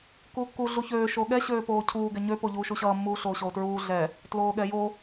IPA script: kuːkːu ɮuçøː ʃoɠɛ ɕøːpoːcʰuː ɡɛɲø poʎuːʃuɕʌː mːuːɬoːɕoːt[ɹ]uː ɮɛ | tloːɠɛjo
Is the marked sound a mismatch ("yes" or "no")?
no